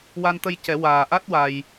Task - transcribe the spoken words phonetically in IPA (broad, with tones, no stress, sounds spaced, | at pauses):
w a˧ n t̪ ə˧ j c ɛ˨˩˦ w aː˨˩ ʔ a˦˥ t̚ w a˧ j